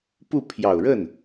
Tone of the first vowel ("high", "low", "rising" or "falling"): falling